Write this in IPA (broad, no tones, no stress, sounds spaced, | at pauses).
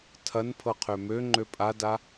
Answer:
tʰ ɐ n pʰ ɤ qʰ ø m ø ŋ͡ǃ ø pʼ a d a